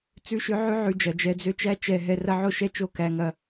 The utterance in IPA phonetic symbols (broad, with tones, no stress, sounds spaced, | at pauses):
t͡s ʉ˦ ʃ ø˦ ʕ ʉ˦ ʕ ʉ˧ d͡ʒ ɐ˨ d͡ʒ ɛ˧ d͡z ø˦ t͡ʃ æ˦ t͡ʃ ɛ˧ ɦ ɛ˧ r ɐ˦ ʕ o˦ ʃ ɛ˦ t͡ʃ o˦˨ k æ˧ ŋ ɐ˧